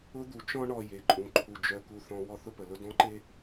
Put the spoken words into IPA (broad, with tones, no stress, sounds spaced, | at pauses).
ʊ˦ d̪ u˨ t͡ʃ ɔ̃˦ ɳ ɔ˨ j e˨ ǃʼ ũ˨ ǃʰ u˨ d͡ʒ œ˨ k u˨ θ ɔ̃˨ w ɔ˦ θ ʊ˦ p ə˨ l ʊ˦ d ɔ̃˦ ǃ e˦